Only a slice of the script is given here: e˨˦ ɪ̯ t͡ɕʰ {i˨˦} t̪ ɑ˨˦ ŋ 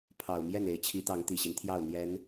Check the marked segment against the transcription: correct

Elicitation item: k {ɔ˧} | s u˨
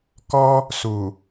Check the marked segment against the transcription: correct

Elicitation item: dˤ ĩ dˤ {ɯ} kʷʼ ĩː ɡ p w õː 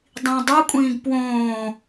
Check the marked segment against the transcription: incorrect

